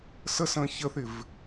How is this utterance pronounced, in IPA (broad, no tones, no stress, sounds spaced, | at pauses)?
s ə s ə̃ː ç ə θ ɪ v